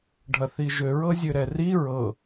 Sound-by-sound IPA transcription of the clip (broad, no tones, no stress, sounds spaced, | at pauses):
ɖʱ ɐ θ i ʒ ø ɹ ɤ zʲ ø ɾ ɛ r i ɹ ɤ